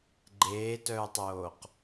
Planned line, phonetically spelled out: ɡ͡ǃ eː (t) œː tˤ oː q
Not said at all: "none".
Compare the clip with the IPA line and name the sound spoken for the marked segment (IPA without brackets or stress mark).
t